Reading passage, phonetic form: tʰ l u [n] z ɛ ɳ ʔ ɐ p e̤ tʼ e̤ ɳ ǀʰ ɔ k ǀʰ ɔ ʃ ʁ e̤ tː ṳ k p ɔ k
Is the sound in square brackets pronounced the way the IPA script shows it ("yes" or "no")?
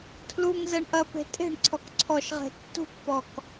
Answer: no